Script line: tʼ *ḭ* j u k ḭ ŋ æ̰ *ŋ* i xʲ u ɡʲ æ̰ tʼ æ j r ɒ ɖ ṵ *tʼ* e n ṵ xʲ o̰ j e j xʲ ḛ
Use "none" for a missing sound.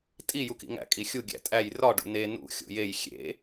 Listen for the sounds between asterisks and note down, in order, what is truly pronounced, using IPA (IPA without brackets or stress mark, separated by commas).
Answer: i, kʼ, n